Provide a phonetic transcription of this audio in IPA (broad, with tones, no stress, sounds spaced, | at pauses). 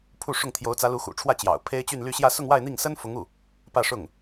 pʰ u˥˧ ʂ ʊ˥˩ ŋ t̪ʰ j o˧˥ ʊ̯ t͡s ä˧˥ l u˧˥ x ṵ˨˩ ʈ͡ʂʰ w ä˥˩ t͡ɕ j ɑ̰˨˩ ʊ̯ pʰ e˥ ɪ̯ t͡ɕ y˥˧ n l y˥˧ ɕ j ä˥˧ s ʊ˥˧ ŋ w a˥˧ ɪ̯ n̪ i˥˩ ŋ s ə˥ n f ʊ˧˥ ŋ u˥˩ | p ä˥˧ ʂ ʊ˥˩ ŋ